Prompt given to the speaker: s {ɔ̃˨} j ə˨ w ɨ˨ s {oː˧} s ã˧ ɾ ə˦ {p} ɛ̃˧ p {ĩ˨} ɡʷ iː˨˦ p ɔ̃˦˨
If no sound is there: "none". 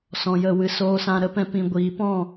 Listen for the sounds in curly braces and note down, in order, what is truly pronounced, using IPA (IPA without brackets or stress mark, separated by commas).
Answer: ɔ̃˨, oː˧, p, ĩ˨